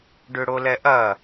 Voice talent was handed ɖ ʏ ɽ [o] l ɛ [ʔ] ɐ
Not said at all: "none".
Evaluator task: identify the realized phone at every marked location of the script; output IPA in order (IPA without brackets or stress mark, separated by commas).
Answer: o, ʔ